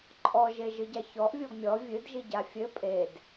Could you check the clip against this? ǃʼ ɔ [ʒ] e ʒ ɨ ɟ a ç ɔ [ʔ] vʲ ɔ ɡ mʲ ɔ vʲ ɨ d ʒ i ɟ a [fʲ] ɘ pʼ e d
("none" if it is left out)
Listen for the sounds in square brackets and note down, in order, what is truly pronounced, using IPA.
ʒ, ʔ, fʲ

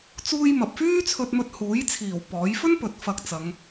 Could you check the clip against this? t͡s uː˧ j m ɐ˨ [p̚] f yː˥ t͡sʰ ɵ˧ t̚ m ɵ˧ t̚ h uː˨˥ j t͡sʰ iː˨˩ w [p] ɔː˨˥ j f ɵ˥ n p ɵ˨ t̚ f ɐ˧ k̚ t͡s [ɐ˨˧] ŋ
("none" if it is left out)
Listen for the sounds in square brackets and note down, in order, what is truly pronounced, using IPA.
p̚, p, ɐ˨˧

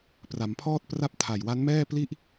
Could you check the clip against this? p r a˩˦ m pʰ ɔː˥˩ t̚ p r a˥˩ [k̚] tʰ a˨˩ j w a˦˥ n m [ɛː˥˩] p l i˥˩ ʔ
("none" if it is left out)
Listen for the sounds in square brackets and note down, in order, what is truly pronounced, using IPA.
p̚, ɛː˥˩

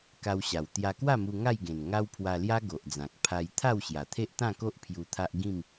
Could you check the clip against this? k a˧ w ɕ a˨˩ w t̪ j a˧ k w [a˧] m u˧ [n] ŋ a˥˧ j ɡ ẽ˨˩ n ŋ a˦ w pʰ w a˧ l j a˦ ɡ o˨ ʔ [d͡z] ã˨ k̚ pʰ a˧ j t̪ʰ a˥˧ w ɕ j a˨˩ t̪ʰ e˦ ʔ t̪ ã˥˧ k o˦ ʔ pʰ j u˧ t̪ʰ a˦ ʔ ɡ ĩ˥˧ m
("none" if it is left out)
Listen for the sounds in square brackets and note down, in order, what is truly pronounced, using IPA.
a˥˧, none, d͡z

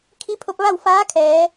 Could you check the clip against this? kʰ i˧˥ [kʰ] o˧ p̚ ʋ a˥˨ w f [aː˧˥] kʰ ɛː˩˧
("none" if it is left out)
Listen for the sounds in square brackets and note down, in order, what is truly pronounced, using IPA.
pʰ, aː˧˥

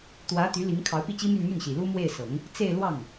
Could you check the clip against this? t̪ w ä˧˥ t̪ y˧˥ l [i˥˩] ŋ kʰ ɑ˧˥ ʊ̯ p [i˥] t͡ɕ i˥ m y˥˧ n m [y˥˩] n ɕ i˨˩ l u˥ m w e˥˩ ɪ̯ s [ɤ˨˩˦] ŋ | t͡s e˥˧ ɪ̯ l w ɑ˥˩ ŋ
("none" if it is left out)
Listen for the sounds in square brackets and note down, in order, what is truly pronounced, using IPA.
i˧˥, i˥˩, y˥˩, ɤ˨˩˦

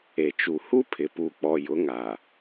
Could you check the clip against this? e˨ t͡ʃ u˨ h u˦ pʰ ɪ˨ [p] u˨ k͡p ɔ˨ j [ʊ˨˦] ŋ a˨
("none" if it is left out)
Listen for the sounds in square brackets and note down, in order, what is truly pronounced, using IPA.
p, ʊ˨˦

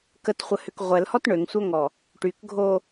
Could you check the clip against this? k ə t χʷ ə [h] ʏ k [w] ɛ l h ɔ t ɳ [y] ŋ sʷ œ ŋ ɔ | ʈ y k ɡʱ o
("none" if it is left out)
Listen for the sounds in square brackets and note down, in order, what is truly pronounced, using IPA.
h, ʁʷ, ø

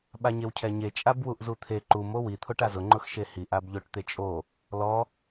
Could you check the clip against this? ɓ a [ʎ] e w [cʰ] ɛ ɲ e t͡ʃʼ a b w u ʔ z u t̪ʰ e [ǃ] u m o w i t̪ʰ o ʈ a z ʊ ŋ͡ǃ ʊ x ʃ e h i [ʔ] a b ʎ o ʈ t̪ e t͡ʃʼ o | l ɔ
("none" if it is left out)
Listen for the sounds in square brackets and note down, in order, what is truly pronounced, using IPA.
ɲ, cʰ, ǃ, ʔ

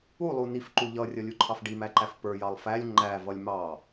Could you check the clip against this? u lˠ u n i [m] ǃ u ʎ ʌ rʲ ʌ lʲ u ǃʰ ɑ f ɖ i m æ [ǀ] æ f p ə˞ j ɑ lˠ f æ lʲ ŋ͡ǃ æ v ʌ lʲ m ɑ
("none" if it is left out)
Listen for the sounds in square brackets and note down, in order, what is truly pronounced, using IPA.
f, ǃ

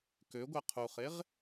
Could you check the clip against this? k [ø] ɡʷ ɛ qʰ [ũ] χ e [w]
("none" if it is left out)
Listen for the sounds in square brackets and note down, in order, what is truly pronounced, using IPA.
ø, u, ʁ

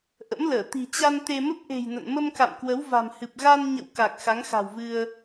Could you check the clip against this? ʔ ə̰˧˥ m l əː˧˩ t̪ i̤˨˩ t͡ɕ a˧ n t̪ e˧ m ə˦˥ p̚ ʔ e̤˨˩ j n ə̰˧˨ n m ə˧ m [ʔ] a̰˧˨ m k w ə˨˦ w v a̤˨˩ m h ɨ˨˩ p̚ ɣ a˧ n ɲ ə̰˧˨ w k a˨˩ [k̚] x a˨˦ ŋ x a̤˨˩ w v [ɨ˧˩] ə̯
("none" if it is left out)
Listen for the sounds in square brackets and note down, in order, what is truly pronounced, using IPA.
k, k̚, ɨ˧

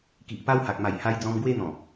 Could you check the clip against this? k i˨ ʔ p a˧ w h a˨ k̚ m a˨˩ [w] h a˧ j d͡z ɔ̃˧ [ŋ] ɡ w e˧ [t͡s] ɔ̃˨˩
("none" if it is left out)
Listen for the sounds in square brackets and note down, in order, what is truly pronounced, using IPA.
j, m, n̪

